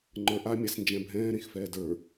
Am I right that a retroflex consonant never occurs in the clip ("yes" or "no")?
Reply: yes